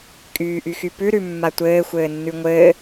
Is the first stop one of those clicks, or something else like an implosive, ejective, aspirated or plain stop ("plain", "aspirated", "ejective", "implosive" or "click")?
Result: ejective